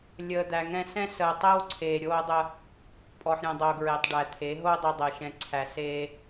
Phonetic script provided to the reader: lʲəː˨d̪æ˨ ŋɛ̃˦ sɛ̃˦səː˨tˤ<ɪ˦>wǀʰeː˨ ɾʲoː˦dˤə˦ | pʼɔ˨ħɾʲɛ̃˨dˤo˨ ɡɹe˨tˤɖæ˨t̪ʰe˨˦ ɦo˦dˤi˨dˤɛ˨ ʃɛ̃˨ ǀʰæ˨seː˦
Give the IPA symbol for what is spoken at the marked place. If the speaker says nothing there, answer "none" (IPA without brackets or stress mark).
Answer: ɛ˦